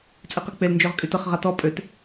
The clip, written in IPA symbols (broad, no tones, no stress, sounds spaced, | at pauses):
t͡sʼ i q e k͡p e l n d͡ʒ ø ʁ kʼ y t ə χ ʁ a t ɔ pʼ ø t